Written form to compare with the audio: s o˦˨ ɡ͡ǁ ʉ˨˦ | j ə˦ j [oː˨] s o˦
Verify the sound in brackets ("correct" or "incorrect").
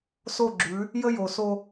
incorrect